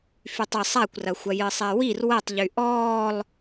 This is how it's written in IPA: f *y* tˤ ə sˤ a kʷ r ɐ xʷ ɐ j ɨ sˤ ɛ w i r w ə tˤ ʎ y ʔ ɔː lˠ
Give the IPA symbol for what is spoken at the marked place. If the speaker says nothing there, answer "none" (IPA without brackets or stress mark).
y